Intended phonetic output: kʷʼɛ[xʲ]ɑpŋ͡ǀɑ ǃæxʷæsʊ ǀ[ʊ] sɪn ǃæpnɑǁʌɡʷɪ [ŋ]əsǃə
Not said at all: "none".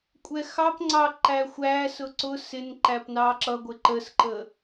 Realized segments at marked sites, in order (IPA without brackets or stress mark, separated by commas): x, ʊ, ǃ